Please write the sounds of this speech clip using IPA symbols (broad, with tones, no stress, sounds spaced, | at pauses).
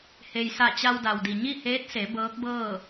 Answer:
h e˩ j s a˧˩ t͡ɕ a˧ w d a˩ w d i˩ ɲ i˥˨ h eː˧˥ t̚ s e˩˧ b ɤː˧˥ k̚ b ɤː˥˨